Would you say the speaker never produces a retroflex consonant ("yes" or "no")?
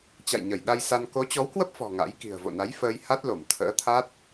yes